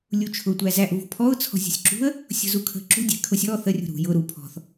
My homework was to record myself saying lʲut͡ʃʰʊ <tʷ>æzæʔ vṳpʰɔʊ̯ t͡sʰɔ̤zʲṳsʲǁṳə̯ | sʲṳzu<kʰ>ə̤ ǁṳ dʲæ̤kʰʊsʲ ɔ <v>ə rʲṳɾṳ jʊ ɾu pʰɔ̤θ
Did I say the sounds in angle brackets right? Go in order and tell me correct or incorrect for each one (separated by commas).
correct, correct, incorrect